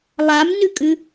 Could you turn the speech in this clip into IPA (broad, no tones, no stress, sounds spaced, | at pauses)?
lˠ a m n ʉ kʼ ʉ